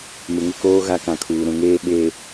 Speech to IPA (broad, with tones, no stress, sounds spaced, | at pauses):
m ɪ˨ ŋ ɪ˦ k oː˦ ɣ a˦ k ã˨ kʰ uː˨ ɾ ũ˨ ŋ eː˦ ɓ e˦˨